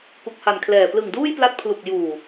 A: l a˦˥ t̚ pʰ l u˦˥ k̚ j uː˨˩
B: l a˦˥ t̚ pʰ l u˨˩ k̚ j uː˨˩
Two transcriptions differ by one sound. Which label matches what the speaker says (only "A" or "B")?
B